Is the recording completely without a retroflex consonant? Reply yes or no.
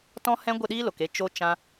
yes